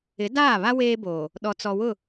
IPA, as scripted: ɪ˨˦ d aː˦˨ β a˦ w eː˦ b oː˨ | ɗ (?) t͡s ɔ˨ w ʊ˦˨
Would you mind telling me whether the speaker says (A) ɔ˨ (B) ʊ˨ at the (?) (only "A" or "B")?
A